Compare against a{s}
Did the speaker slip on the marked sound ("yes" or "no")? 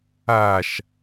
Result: yes